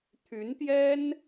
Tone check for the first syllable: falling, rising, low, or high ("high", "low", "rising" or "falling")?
rising